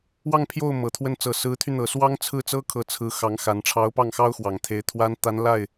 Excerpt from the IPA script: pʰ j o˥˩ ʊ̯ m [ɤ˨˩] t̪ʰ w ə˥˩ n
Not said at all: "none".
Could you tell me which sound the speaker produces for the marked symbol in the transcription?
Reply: ɤ˨˩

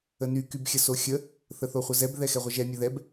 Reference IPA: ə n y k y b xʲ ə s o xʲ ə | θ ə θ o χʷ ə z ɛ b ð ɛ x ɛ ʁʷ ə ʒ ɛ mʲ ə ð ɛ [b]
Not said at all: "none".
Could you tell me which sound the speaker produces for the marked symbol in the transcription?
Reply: b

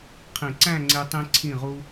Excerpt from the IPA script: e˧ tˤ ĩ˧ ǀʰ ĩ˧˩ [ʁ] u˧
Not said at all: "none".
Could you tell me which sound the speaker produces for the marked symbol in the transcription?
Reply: ʁ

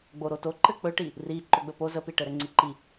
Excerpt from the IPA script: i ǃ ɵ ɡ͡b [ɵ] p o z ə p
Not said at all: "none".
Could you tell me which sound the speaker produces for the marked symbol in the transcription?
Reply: ɵ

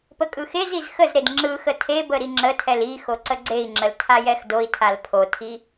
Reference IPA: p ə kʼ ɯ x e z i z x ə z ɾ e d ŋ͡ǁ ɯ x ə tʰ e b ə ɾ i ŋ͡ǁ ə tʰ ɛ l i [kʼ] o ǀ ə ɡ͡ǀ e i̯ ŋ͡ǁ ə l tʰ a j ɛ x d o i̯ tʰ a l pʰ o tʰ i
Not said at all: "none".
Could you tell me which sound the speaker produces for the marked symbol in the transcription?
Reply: x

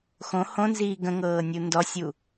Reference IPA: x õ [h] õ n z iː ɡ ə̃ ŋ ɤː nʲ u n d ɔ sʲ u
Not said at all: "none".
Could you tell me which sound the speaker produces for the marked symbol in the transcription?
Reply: h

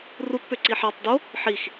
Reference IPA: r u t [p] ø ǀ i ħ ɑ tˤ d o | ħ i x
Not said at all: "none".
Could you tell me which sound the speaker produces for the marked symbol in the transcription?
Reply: p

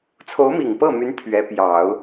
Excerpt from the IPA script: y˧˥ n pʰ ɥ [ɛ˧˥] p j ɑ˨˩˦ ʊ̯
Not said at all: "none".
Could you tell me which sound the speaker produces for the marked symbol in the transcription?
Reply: ɛ˧˥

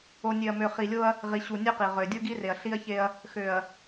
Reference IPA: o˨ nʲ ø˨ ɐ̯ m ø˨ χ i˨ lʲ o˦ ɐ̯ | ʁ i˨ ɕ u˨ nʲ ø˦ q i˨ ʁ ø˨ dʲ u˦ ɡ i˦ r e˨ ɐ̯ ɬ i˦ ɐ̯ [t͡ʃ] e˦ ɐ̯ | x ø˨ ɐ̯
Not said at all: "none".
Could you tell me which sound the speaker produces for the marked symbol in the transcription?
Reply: ç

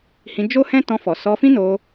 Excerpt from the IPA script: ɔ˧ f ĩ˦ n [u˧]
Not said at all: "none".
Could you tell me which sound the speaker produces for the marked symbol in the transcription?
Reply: o˧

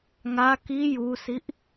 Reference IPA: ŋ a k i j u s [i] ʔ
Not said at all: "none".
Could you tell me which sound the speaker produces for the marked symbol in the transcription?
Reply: i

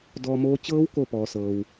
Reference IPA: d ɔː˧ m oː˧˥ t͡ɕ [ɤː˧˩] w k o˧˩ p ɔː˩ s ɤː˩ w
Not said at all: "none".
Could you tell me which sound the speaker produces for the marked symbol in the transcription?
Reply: ɤː˧˥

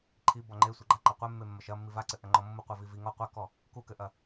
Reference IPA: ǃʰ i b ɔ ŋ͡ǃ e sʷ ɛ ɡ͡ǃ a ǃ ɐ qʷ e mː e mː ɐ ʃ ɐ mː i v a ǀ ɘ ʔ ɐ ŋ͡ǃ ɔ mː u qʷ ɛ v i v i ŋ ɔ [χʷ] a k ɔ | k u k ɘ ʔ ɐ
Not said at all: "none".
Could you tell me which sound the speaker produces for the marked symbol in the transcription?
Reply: qʷ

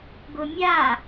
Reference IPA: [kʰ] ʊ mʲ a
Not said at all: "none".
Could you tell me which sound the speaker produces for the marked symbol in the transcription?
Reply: ɡ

